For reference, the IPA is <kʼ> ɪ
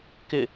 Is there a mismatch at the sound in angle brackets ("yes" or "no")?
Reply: yes